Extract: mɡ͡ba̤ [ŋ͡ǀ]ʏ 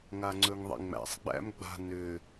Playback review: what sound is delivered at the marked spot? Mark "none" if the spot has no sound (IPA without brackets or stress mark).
n